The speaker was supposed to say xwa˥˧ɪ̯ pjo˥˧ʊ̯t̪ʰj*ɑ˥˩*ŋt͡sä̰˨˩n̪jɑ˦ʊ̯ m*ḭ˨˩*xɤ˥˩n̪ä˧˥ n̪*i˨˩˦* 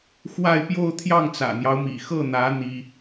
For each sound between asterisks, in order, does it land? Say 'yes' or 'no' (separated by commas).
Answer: yes, yes, no